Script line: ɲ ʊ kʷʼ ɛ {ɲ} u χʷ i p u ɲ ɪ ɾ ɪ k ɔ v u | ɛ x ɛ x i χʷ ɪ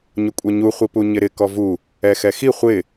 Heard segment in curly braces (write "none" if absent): ɲ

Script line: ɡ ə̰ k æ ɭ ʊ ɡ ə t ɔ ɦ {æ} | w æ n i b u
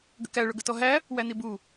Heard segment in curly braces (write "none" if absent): æ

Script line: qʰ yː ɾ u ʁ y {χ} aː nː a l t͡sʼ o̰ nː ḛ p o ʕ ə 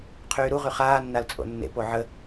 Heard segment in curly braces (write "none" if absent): χ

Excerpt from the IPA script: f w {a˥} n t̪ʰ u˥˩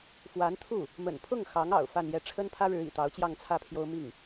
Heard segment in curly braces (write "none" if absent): a˧˥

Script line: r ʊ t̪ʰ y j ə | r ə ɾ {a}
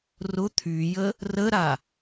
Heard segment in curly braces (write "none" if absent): a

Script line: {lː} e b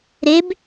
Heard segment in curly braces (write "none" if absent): ɾ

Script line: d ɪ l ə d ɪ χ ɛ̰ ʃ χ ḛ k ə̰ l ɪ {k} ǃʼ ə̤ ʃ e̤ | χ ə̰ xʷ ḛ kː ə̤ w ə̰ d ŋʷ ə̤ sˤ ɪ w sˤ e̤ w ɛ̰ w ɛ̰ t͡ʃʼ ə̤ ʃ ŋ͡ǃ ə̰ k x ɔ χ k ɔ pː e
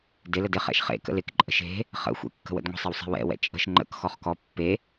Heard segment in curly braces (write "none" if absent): k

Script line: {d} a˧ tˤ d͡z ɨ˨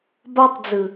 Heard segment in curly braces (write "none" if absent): b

